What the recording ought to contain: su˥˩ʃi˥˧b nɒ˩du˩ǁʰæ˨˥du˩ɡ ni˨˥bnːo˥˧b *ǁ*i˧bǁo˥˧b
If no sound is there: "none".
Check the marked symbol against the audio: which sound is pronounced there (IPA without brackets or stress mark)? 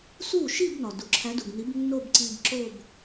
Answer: ǀ